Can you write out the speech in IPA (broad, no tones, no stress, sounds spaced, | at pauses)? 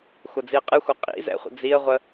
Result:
xʷ ɐ d͡z i ə̯ qʼ ɨ xʷ ɐ qʼ ḭ z ɛ̰ χʷ ə̰ d͡z i ə̯ ʁʷ ə